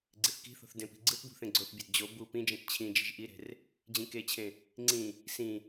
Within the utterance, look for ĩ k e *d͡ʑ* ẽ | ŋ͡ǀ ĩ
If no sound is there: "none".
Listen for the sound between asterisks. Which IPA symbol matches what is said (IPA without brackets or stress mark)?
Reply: t͡ɕʰ